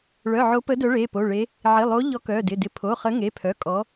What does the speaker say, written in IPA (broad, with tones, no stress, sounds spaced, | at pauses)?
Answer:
ɭ œ˩˧˩ ʕ o˨˦ p ə˨˦ d œ˨˦ ɭ e˩˧˩ p o˩˧˩ ɭ e˨˦ | ʕ ɪ˩˧˩ lˠ o˨˦ ʎ ɔ˨˦ k œ˩˧˩ d ɪ˩˧˩ d ɪ˨˦ pʰ o˩˧˩ χ ə˨˦ ŋ e˩˧˩ pʰ œ˩˧˩ kʼ ɔ˨˦